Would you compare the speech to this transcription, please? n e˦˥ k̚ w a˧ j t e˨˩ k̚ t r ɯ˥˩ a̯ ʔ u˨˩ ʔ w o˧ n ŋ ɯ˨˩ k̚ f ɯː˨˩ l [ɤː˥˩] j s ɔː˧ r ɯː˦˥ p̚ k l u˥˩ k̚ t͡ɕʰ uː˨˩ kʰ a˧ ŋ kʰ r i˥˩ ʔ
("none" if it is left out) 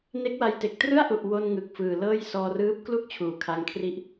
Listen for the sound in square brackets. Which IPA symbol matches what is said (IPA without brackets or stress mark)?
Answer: ɤː˥˩